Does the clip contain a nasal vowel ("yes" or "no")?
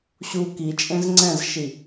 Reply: yes